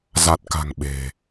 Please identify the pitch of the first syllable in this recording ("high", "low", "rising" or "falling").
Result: low